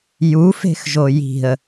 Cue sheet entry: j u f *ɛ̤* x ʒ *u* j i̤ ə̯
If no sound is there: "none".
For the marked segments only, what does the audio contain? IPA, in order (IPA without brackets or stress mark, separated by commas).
e̤, o